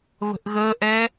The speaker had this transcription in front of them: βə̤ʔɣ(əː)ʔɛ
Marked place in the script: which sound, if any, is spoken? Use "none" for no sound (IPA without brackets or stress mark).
əː